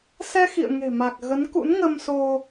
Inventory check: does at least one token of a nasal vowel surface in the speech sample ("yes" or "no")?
no